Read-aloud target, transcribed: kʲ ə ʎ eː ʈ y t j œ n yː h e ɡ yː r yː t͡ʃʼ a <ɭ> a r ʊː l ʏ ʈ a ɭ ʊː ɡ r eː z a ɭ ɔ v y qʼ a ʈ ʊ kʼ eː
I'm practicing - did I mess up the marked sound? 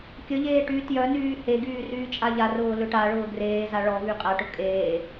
yes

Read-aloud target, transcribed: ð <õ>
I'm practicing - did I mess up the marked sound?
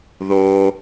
yes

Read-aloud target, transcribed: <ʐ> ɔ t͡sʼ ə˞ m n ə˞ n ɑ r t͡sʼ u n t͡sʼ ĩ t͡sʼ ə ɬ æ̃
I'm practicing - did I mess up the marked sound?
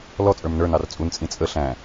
yes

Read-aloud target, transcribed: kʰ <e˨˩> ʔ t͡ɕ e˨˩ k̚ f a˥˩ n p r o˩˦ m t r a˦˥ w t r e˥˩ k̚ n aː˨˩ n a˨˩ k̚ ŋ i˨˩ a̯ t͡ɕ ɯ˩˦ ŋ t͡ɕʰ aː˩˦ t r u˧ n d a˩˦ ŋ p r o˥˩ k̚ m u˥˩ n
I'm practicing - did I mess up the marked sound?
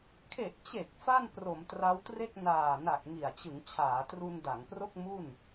no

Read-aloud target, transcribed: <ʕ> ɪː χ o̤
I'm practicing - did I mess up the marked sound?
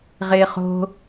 yes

